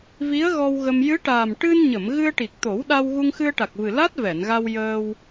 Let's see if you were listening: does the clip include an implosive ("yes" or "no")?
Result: yes